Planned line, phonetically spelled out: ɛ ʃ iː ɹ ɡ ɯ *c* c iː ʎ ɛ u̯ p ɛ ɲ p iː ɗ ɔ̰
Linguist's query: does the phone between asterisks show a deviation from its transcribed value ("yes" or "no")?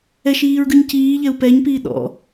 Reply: yes